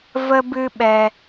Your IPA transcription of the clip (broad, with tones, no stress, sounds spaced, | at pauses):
v ə˦ b ɨ˦ ɓ ɛ˧